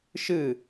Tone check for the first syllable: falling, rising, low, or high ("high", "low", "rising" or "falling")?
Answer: falling